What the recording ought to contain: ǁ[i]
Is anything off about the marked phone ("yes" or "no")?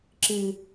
yes